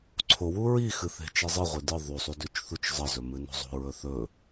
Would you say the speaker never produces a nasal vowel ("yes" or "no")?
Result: yes